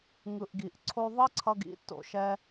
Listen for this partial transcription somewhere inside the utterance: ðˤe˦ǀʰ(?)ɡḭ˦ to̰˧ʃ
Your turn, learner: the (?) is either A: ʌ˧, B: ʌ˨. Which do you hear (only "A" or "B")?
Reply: A